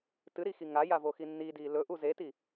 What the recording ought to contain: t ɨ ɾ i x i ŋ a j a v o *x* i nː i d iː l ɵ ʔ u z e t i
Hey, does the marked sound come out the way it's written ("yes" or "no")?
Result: yes